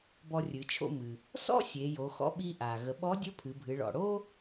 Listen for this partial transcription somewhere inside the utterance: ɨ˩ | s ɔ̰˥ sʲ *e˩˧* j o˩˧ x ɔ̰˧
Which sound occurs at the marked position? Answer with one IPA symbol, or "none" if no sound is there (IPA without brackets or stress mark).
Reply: e˩˧